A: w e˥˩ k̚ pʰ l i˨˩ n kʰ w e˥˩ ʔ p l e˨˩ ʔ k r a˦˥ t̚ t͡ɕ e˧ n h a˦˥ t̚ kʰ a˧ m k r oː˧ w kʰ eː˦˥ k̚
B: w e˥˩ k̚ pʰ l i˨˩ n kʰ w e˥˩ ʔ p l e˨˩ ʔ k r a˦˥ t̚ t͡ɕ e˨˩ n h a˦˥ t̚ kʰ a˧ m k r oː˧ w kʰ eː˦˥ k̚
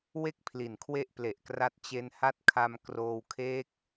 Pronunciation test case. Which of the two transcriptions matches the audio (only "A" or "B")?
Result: A